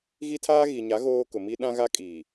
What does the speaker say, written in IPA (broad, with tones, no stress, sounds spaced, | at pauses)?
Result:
ɣ i˦ tʰ aː˦ ɣ i˨ ɲ a˨˦ ɣ oː˦ k ʊ˨ m i˦ ɗ ã˦ ɣ a˦ kʼ iː˨